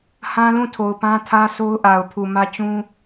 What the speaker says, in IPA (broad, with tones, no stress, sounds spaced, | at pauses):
h ã˦ l ũ˦˨ tʰ o˨ ʊ̯ p ã˦ tʰ ä˦ sʰ o˦ ʊ̯ ʔ a˨ ʊ̯ pʰ u˨ m ä˦ t͡ɕ ũ˦